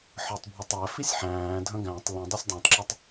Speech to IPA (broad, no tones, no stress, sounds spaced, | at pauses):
ħ ə˞ tˤ bʱ ʊ tˤ æ f i sʲ ħ æ̃ː dʱ ə̃ ɡ æ̃ tˤ l ə̃ dˤ i sʲ dˤ æ̃ tˤ ǁ ə˞ tˤ